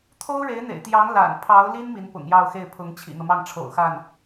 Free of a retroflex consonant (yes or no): no